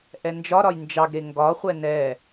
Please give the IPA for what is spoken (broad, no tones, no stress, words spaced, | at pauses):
ʔɛnd͡ʒɒɾɒj nd͡ʒɑɡɾe ŋɡɒχʷɛ nɛ